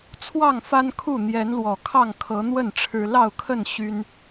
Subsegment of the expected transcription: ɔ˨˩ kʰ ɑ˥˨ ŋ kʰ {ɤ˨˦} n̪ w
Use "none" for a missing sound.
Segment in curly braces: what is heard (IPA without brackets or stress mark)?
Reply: ɤ˨˦